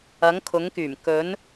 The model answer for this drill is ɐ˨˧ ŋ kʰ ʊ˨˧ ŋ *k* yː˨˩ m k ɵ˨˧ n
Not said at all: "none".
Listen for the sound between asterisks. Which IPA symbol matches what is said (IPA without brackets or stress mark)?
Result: k